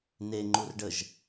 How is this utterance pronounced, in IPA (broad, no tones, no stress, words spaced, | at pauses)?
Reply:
neŋ͡ǃurɖəʒ